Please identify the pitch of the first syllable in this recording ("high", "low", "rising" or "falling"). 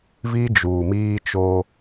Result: high